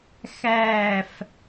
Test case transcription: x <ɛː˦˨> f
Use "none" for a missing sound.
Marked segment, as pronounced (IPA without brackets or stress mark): æː˦˨